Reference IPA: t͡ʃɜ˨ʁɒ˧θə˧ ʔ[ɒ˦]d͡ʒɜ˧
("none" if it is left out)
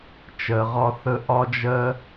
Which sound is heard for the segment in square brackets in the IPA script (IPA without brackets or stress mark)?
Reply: ɒ˧